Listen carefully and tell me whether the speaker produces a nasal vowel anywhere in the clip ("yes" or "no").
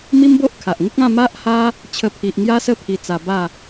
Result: yes